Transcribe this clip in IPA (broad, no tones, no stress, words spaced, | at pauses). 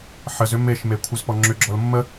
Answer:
ħəzʏ meʃme kʷʰəzpɔŋ͡ǁʏɡ͡ǁɔl mːə